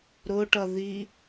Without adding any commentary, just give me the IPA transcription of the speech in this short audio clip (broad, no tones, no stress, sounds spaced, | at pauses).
ɾ ʊ ʈ ʌ ð i